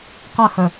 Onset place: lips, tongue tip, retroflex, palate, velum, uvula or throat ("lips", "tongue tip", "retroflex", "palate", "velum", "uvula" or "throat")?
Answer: uvula